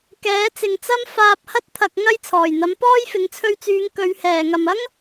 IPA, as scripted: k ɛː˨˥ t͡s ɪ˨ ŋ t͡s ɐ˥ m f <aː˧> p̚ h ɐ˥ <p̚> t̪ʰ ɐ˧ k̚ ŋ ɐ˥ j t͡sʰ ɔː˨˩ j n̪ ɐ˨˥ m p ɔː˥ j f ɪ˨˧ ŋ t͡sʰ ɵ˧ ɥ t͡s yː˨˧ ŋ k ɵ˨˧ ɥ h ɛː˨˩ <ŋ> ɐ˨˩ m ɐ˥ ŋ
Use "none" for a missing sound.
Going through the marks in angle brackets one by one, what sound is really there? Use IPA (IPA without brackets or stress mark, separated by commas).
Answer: aː˧, t̚, ŋ